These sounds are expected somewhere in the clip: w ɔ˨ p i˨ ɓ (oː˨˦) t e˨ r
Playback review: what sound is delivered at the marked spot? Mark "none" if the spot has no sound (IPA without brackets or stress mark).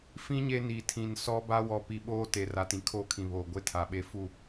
oː˦